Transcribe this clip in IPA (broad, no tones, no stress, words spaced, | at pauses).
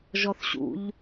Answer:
ʒɔθɕṵʎ